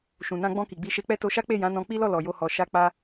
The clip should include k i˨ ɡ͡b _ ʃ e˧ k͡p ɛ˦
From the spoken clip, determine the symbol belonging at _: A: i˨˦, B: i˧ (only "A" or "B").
A